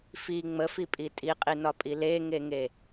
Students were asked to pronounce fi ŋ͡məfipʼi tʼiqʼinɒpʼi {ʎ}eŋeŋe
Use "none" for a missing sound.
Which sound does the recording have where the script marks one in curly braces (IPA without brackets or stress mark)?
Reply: l